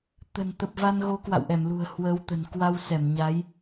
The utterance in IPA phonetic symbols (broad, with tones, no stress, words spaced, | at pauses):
t̪ə̤˨˩nt̪ə˨˩p̚va˧n ɣo˨˦kwa̰˧˨wʔɛ˧˩mlṳ˨˩ə̯ hwə˨˦wt̪ə̤˨˩n kwa˧wsɛ˧˩mɲa˨˦j